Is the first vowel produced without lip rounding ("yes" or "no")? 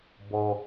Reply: no